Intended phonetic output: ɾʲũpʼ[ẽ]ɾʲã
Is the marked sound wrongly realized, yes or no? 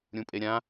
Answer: yes